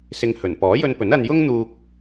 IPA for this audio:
s ɪ˧ ŋ h ɵ˨˩ n p ɔː˨˥ j ɵ˧ n p ɵ˨˥ n ɐ˧ n j ʊ˥ ŋ n̪ uː˧ k̚

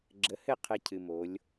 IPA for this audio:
ɡ͡ǁ ə˨˦ h ɘ˦˨ qʰ ɘ˦ cʰ ɨ˨ m o˨˦ lʲ

